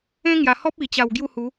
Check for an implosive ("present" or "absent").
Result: absent